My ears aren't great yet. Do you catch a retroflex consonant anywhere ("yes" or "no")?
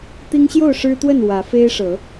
yes